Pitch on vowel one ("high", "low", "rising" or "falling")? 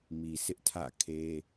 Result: low